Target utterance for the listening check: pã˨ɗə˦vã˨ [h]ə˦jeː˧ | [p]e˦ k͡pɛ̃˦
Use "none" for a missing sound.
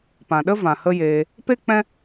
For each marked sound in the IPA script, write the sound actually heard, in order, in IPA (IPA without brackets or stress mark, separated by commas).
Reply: h, p